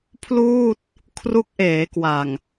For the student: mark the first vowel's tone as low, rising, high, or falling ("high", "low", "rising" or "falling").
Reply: falling